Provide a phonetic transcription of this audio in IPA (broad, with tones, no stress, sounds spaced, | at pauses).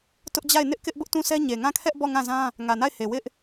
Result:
t ʊ˦ ʔ d͡ʑ a˦˨ ɪ̯ n ɪ˦ ʔ k ɪ˦ ʔ b ʊ˦ ʔ t ũ˦˨ sʰ ɛ˦ ɲ e˨ ŋ ã˦˨ kʰ ɛ˦ ʔ b ɔ˦˨ ŋ ã˦˨ z ã˦ | ŋ ä˨ n a˦˨ ɪ̯ h e˨ w ɪ˦ ʔ